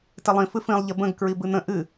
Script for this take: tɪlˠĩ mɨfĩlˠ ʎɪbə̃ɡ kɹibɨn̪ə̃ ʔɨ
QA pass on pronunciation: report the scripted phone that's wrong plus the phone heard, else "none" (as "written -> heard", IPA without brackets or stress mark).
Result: m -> f